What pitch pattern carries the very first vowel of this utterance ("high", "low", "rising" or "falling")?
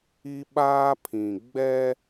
high